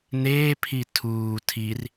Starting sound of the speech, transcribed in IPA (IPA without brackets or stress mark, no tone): n